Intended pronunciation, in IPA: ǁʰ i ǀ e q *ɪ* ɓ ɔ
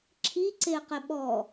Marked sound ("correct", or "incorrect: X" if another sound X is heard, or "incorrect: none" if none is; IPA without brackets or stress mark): correct